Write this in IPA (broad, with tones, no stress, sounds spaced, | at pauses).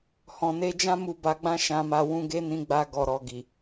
h ɔ̃˨ n e˨˦ d͡ʒ ã˦ m u˧ b a˧ ɡ͡b ã˦ ʃ ã˧ m a˧ w ũ˧ ɡ e˦ n ĩ˧ ɡ͡b a˧ ɡ ɔ˨ ɾ ɔ˨ ɡ i˨